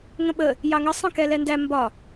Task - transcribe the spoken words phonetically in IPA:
ŋ ə̃ ɓ ə | j ɑ ŋ ʌ sˤ ə̃ k ɛ l ɛ n d æ m b ɒ

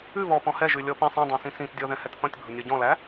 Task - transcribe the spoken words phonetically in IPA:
ʉ β ɔ p ɔ̃ h ɛ ʒ ʉ lʲ ɔ p ĩ sˤ ɛ̃ dˤ æ̃ s ĩ s ĩ t dʲ ɔ ð ɛ̃ h ɛ t θ ɔ̃ tʲ bʱ ʊ nʲ ɔ ɟ ɔ̃ l æ

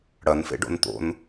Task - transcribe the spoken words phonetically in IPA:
ɽ ɐ n f ḛ ɖ o̰ n t̪ o̰ n

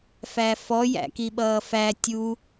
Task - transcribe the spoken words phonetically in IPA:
f æ f ɔ j æ̰ k i ɓ ʌː f æ tʲ u

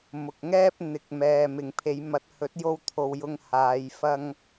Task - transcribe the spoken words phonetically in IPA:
m ʊ˨ k̚ ŋ ɛː˥ p̚ n̪ ɪ˨˥ k̚ m ɛː˨ m ɪ˨ ŋ pʰ e˨˧ j m ɐ˨˥ t̚ h ɵ˨˥ t̚ j o˧ w t̪ʰ o˨ w j ʊ˧ ŋ h aː˨˧ j f ɐ˧ ŋ

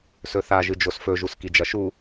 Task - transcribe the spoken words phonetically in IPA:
s ɵ θ a ʒ ɨ d͡ʒ o s f ɵ ʒ u s k i d͡ʒ ɐ ʃ u

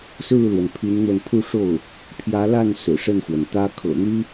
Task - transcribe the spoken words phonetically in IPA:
s ɹ̩˥˩ l w ə˩ n pʰ y˧˥ n n̪ w ə˧ n pʰ u˥˧ ʂ o˥˩ ʊ̯ | pʰ j ä˧˥ l a˥˩ n s ɹ̩˨˩ ʂ ə˥˩ n x w ə˩ n t̪ ä˥ kʰ ɤ̰˨˩ n̪ y˥

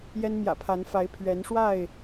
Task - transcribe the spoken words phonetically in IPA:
j ɛ˦ n m j ä̰˨˩ pʰ a˨˦ n f a˨˦ ɪ̯ pʰ ɥ ɛ˨˦ n ʂ w a˥˨ ɪ̯

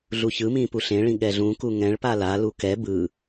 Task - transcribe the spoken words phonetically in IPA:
ɮ u ç ɯ m ĩ p u ɬ ẽ ɭ ĩ ɠ ɛ ɮ ũ k u ŋ ɛ̃ ɭ p a l a l u k ɛ b ɯ

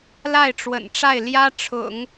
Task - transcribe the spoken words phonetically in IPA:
l a˥˩ ɪ̯ ʈ͡ʂ w ə̰˨˩ n ʈ͡ʂ a˥˩ ɪ̯ l j ä˥ ʈ͡ʂʰ ʊ̰˨˩˦ ŋ

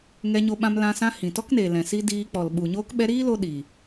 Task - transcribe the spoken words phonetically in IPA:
ŋ ɛ˧ ɲ o˧ ɓ ã˧ m l ã˧ s ã˦ h ĩ˨ t ɔ˦ k n eː˨ l ɛ̃˨ s i˦ d iː˧ k͡p ɔ˨ l ɓ u˨ ɲ oː˦ k ɓ ɛ˦ ɾ iː˦ l o˧ ɗ iː˨

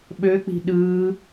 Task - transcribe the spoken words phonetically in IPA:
ɓ ø k͡p i̤ ɗ ɯː

